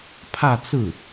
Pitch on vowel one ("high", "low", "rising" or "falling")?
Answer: falling